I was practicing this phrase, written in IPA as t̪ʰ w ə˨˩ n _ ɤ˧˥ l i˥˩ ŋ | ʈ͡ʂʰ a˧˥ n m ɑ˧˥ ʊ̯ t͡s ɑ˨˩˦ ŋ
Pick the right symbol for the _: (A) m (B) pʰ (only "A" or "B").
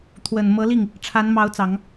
A